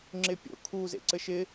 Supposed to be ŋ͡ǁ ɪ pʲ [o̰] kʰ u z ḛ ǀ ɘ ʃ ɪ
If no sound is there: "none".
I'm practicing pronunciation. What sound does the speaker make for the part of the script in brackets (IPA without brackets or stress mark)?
o̰